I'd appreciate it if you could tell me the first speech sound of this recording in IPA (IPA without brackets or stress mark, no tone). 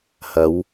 h